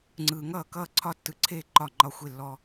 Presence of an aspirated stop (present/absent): present